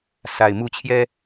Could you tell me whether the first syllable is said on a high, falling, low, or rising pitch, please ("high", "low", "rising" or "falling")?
low